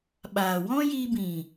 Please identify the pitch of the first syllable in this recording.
low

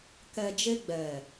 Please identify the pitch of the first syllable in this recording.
low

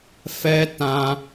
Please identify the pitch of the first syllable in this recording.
high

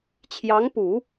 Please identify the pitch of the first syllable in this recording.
rising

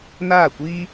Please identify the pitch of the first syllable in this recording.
falling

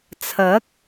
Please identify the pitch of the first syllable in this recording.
rising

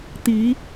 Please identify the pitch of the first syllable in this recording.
rising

